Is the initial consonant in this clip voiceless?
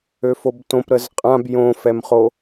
yes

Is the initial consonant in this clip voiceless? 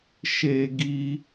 yes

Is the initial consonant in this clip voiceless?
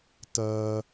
yes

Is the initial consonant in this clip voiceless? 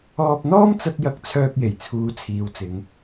yes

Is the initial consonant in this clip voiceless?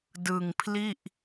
no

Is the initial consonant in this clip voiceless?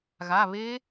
no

